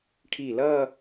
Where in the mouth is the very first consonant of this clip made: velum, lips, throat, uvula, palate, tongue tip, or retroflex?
retroflex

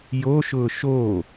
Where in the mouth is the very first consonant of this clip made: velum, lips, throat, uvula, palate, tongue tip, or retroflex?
palate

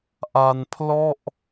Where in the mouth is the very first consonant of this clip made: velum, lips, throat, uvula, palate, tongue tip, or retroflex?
throat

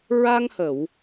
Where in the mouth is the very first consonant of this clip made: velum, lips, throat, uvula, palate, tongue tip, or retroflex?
tongue tip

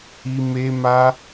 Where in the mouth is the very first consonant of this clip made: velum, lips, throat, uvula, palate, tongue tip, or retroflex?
lips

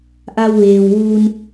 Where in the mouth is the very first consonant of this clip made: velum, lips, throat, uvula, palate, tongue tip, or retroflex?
throat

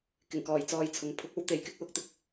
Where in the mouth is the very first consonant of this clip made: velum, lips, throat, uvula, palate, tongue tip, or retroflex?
velum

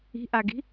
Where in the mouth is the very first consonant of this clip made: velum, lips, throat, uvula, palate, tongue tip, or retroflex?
throat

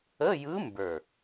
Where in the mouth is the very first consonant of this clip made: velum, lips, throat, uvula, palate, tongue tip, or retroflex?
palate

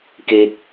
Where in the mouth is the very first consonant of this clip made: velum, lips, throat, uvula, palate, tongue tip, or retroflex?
velum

